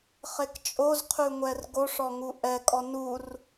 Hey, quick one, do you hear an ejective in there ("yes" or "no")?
yes